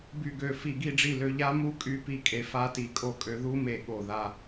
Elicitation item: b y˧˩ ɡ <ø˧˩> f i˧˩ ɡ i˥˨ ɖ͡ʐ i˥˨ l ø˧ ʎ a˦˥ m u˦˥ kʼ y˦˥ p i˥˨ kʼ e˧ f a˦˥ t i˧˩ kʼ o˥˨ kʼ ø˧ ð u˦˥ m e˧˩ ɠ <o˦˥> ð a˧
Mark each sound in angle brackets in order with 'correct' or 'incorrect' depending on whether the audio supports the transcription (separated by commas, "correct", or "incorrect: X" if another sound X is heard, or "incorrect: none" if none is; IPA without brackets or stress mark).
correct, incorrect: o˧˩